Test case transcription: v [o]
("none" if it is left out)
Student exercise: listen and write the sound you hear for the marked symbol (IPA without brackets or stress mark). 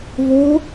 o